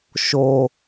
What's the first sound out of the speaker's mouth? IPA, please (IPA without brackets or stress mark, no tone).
ʃ